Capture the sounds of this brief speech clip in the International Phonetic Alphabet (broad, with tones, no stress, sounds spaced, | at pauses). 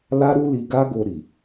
l a˦ ɾ u˦ l i˧ ɡ a˦ ɡ o˧ ɾ i˨